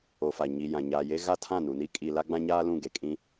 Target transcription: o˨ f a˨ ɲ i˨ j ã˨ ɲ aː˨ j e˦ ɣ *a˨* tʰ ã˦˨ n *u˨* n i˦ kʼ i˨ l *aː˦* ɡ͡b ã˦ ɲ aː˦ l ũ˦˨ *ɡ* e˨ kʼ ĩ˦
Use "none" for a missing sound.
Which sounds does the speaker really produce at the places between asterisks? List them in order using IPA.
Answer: a˦, u˨, a˦, ɡ

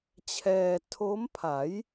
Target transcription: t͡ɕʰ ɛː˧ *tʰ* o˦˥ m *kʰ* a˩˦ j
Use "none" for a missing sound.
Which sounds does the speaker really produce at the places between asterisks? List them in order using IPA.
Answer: tʰ, pʰ

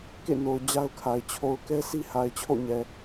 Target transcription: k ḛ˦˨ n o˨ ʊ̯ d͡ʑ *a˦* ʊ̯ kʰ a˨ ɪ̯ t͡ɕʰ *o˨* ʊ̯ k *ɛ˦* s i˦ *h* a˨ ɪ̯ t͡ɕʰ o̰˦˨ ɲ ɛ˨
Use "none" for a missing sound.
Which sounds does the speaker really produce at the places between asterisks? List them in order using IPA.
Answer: a˦, o˨, ɛ˦, h

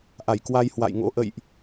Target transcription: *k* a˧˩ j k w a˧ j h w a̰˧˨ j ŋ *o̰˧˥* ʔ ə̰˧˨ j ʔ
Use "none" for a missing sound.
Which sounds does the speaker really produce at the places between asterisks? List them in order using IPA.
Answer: ʔ, o̰˧˥

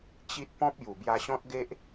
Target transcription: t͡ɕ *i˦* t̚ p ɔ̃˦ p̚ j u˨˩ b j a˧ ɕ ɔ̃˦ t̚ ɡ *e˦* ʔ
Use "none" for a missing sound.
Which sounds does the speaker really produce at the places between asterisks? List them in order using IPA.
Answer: i˦, e˦

